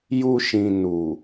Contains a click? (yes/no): no